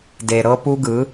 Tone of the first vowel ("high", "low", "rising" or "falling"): low